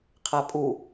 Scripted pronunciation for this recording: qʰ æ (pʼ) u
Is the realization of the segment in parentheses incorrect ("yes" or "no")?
no